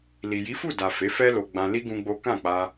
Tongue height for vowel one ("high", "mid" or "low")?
high